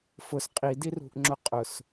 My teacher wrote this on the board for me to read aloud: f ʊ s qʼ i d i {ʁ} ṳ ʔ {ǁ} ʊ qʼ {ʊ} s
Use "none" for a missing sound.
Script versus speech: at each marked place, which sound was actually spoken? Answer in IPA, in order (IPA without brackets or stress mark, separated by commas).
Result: r, ŋ͡ǁ, ʊ